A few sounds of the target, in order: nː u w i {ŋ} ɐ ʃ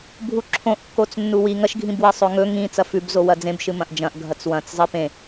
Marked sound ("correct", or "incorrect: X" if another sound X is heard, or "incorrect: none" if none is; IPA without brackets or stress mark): correct